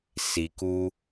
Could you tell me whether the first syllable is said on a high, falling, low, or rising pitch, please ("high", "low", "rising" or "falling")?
low